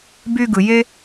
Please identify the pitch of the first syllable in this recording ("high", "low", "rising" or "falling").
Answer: high